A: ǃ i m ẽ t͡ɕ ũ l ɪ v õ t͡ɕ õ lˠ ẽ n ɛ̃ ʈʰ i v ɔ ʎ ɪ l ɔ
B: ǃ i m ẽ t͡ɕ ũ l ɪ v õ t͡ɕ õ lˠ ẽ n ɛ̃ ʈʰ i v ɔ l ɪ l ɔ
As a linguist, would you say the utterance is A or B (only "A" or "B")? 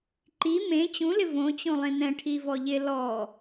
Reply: A